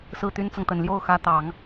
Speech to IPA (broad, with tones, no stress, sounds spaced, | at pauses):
s ɹ̩˥˩ t̪ y˥ n t͡s ɤ˨ ŋ t̪ ə˨˩ n l j o˥˩ ʊ̯ x ä˧˥ t̪ ɑ˨˩˦ ŋ